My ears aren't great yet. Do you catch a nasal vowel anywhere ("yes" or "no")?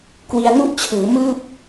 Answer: no